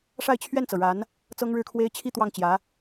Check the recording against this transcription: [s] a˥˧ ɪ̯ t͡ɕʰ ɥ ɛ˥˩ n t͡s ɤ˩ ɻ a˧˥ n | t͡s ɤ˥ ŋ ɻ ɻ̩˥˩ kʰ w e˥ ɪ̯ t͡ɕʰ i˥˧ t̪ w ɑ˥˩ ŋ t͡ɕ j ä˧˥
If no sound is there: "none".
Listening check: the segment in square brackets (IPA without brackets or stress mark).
ʂ